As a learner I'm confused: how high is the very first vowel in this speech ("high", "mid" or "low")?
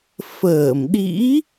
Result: mid